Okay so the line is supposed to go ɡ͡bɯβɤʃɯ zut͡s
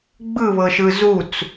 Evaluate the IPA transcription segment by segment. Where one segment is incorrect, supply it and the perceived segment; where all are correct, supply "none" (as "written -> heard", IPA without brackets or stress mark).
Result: none